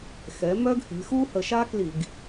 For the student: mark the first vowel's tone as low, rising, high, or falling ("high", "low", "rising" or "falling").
rising